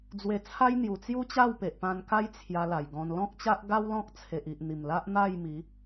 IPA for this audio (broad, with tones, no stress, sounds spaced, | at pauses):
d͡z w e˧ t͡sʰ a˦ j n̪ j u˨˩ t͡s j u˦ t͡ɕ a˥˧ w p e˨ ʔ p ã˧ n k a˦ j t͡sʰ j a˧ l a˨˩ j ɡ ɔ̃˧ n l ɔ̃˦ k̚ t͡ɕ a˦ ʔ ɡ a˦ w l ɔ̃˦ k̚ t͡sʰ e˨ ʔ i˨ ʔ n̪ i˨˩ m l a˦ ʔ n̪ a˥˧ j m i˨˦